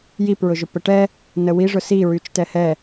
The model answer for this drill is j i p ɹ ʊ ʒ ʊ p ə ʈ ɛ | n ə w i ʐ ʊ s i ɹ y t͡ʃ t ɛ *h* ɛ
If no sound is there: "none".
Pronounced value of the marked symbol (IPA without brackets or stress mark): h